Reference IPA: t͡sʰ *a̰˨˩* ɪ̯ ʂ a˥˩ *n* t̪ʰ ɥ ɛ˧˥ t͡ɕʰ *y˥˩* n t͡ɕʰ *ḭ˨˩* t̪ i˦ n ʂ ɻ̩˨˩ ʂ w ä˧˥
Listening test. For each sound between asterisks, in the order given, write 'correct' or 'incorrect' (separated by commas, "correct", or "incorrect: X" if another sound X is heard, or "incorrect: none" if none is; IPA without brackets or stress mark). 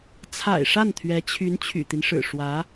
correct, correct, incorrect: y˧˥, incorrect: y̰˨˩